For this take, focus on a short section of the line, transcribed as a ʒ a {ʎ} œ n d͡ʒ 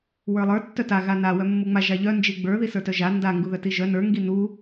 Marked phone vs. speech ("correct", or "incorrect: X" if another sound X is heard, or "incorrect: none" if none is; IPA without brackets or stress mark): correct